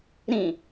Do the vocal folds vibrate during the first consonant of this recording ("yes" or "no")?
yes